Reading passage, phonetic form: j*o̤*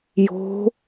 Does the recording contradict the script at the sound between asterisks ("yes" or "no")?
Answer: no